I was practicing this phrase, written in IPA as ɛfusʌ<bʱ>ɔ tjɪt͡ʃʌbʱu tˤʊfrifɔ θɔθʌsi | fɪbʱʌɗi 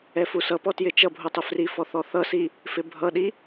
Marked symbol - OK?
no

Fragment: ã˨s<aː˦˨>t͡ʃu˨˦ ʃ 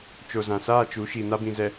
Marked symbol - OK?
yes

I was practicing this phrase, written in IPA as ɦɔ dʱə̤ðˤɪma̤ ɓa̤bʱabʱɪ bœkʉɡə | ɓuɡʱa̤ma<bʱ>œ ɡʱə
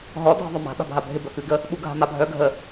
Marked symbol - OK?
yes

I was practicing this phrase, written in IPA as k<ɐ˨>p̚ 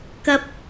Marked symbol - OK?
no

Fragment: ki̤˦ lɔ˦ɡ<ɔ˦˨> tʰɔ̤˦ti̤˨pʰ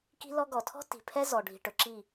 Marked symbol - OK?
no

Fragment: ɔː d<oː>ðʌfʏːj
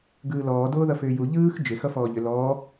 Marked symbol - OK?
yes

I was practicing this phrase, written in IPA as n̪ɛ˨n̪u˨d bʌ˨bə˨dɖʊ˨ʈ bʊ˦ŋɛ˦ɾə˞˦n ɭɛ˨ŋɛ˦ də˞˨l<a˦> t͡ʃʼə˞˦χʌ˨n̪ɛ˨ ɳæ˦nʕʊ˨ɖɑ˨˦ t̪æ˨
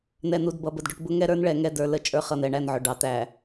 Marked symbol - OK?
no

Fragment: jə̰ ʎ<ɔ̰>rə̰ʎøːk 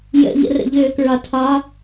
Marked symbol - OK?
no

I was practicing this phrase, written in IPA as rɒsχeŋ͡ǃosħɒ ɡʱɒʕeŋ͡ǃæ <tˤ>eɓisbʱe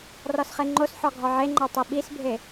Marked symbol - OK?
yes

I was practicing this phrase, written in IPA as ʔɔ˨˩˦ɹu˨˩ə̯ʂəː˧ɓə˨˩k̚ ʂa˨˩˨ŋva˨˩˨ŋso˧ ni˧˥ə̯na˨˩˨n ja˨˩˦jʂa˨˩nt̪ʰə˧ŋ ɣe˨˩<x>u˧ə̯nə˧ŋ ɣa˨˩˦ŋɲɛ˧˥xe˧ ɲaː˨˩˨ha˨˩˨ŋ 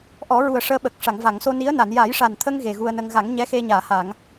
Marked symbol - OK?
no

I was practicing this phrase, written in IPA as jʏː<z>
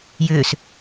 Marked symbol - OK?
no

